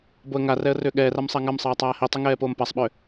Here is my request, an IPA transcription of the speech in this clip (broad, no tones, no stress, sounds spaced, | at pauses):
b o ə̯ ŋ a r ɛ ə̯ r ʏː ɠ ɛː r a m sˤ a ŋ a m sˤ ɛː tˤ aː h i tˤ i ŋ ɛː p oː m p a sˤ ɓ ʏː